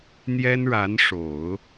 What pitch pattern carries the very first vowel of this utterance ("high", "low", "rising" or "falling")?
high